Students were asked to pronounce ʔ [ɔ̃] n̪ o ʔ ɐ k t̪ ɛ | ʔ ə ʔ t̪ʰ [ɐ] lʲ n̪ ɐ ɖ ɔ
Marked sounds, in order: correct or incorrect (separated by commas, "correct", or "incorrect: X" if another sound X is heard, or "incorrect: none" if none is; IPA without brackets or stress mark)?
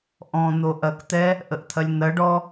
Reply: correct, correct